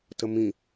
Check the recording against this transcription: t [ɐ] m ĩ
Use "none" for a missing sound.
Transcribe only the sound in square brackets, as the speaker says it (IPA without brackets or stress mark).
ə